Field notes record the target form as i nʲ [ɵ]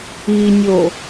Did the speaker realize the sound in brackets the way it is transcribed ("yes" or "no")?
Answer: no